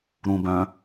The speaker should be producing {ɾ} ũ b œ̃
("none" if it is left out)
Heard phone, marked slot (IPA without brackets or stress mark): ɾ